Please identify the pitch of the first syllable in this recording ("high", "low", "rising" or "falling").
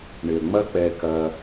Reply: low